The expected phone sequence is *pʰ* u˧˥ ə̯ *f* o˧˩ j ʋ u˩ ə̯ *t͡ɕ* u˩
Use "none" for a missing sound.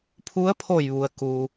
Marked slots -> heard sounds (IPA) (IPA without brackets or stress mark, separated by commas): pʰ, pʰ, k